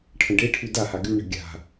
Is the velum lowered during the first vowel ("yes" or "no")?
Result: yes